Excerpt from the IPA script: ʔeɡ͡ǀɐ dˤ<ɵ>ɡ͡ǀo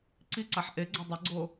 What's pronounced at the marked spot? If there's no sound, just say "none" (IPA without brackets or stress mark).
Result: ɵ